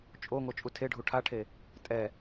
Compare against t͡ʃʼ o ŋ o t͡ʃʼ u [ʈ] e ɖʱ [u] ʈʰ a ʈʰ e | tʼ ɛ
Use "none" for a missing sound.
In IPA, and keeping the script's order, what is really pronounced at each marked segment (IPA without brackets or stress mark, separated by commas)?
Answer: tʰ, u